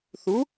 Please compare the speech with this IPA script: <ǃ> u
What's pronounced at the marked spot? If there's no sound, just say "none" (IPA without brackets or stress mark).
θ